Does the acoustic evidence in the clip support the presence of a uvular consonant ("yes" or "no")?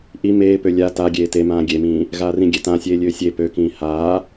no